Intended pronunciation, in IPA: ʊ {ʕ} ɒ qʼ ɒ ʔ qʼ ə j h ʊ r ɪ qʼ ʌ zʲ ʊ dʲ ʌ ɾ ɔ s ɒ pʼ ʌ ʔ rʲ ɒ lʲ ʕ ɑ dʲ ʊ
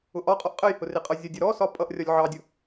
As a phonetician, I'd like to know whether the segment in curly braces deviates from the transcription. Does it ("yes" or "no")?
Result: yes